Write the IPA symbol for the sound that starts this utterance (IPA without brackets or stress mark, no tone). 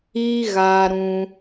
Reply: i